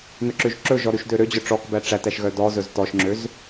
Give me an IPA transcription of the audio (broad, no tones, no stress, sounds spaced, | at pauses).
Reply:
n ɵ ǁ ø ʒ ǁ ɵ ʒ ɔ ɾ ʉ ʃ d ø ɾ ø d͡ʑ œ ʈ͡ʂ ɔ k b æ ʈ͡ʂ æ t æ ʃ ɣ œ d ɔ z ɵ z t ɔ ʃ ŋ͡ǁ ø z